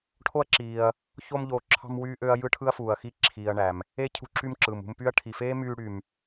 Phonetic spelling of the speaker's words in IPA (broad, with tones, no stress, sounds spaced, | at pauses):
ʈʰ o˥ ɐ̯ ǁ iː˨ ɐ̯ | ç o˦ m ʎ oː˨ ǁʰ ɑ̤˦ m w yː˦ ʔ ø˦ ɐ̯ j ɯ˥ ʈʰ ɯ˥ ɐ̯ f uː˨ ɐ̯ x i˥ ǁʰ iː˨ ɐ̯ ɳ æ˩ m | e˥ cʰ ṳ˦ ǁ y˦ m ǁ ɯ˩ m ṳ˦ m p y˥ ɐ̯ ʈʰ i˨ f eː˥ m yː˥ ɽ y˨ m